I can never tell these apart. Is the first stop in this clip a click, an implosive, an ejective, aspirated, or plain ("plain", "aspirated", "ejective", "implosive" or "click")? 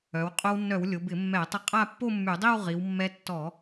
ejective